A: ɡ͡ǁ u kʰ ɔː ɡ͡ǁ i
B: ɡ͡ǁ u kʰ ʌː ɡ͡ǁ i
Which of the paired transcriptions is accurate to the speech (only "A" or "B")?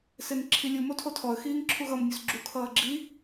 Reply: B